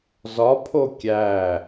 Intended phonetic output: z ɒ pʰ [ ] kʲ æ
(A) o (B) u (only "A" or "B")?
A